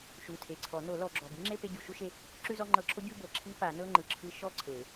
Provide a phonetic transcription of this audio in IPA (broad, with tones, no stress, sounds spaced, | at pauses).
ʃ u˩˧˩ tʰ e˩˧˩ ǀʰ ɔ˨˩˦ n o˨˩˦ l ɔ˨˩˦ ɡ͡ǁ ɔ˩˧˩ b i˥ ŋ͡ǁ e˥˧ p e˥˧ ɟ u˨˩˦ ʃ u˥ ʃ e˥˧ | ǁ ʉ˥˧ z ɔ˥˧ ŋ͡ǃ ɤ˧˥˧ ǁʰ o˥ ɟ ʉ˥˧ b ɤ˩˧˩ ǁʰ i˧˥˧ p a˨˩˦ n ɤ˧˥˧ ŋ͡ǃ ɯ˩˧˩ ǁʰ ɯ˧˥˧ ʃ ɔ˥˧ ǀʰ e˨˩˦